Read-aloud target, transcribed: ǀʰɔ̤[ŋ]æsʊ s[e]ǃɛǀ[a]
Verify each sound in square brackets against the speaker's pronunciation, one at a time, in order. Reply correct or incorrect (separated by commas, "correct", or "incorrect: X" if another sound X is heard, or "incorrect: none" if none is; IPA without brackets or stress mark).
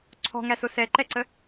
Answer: correct, incorrect: ɛ, incorrect: ə